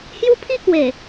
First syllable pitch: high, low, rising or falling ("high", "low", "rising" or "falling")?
high